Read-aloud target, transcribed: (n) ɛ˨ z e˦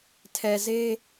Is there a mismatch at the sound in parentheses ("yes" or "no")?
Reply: yes